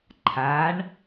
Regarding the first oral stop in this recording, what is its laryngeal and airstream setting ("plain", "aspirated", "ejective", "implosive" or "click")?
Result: click